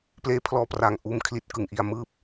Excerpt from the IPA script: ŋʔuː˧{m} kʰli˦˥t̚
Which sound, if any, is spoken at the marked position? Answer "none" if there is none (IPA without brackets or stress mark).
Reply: m